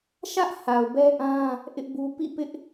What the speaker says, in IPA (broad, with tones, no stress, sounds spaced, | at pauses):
ʃ ä˦ ʔ h a˨ ʊ̯ b ɛ˦ ʔ ã˦ | ʔ ɪ˦ ʔ b u˦ p ḭ˦˨ p ɪ˦ ʔ